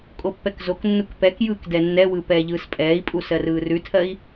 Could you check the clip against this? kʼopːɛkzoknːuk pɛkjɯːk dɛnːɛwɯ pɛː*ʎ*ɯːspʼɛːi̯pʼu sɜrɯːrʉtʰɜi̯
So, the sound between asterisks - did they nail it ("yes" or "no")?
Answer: yes